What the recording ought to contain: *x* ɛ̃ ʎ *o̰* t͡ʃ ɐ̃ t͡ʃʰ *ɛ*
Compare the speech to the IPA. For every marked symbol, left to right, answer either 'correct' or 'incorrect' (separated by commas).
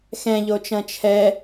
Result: correct, incorrect, correct